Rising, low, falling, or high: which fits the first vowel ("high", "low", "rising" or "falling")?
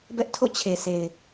high